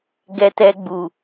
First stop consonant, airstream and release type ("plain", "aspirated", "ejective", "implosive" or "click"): plain